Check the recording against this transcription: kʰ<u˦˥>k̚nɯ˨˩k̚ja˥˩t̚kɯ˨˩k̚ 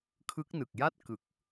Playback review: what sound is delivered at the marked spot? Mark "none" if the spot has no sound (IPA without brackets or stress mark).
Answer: ɯ˦˥